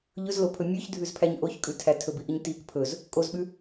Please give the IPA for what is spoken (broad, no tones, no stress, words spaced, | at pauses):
ʎɵzlopʰɵ mʲʉçdʱʉzpʰæɲ ʔoçkʼʉtʰæ tʰɵbiʔiɲ tik pʰɵz | kʼozɓʉ